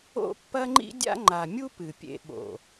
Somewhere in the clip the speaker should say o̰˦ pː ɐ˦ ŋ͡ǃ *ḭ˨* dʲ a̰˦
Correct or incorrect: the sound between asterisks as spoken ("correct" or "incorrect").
incorrect